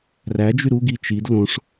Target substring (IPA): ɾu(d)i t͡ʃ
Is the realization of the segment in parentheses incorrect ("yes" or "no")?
yes